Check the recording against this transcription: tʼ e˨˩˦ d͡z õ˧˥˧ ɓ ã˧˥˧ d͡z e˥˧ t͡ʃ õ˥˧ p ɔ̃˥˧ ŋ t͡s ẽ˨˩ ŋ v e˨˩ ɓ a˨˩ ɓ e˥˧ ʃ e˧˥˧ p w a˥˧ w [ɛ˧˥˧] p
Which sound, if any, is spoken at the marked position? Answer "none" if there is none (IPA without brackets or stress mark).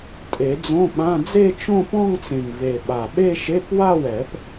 ɛ˨˩˦